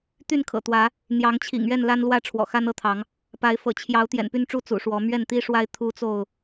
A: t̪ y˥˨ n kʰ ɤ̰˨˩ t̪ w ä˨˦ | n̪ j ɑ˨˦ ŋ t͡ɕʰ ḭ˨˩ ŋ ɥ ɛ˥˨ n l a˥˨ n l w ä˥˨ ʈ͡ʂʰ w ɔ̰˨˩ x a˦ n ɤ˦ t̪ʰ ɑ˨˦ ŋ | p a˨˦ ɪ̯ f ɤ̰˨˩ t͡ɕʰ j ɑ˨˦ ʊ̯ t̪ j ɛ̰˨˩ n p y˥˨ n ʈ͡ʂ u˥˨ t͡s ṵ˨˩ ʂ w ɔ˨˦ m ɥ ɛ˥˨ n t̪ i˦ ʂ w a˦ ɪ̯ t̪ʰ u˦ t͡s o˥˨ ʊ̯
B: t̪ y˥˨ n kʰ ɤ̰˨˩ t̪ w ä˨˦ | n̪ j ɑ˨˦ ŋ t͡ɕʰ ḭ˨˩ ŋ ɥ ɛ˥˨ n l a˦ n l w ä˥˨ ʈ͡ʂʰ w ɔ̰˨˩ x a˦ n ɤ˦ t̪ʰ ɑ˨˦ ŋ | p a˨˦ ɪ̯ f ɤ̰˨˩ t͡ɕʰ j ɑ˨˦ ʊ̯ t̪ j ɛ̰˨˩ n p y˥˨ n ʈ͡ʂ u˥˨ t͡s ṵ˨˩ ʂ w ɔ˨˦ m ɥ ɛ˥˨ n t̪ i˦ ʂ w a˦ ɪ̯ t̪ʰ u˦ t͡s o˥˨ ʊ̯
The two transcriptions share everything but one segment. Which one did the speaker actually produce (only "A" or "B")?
B